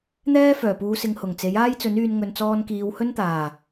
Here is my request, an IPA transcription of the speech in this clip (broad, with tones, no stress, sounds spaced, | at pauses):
n̪ ɛː˥ f œː˨˩ p uː˨˧ s ɪ˨ ŋ h ʊ˨˩ ŋ t͡s e˨˥ j aː˥ j t͡s ɵ˨˥ n yː˧ n ŋ ɵ˨ n t͡s ɔː˧ n k iː˨˧ w h ɵ˥ n t̪ aː˨˩